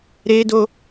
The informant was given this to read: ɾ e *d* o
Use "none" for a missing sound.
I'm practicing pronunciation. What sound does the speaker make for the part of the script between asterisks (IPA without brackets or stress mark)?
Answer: d